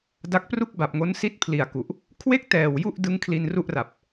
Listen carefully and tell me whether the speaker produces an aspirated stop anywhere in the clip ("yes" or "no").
yes